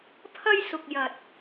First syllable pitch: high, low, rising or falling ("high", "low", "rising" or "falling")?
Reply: high